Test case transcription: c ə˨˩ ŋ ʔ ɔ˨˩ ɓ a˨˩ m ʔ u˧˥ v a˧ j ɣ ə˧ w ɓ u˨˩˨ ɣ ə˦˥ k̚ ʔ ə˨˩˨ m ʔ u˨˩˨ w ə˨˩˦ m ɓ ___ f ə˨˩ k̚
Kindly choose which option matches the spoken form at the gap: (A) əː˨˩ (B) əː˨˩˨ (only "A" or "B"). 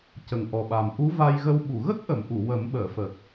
B